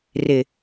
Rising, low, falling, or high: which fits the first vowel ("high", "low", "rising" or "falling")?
low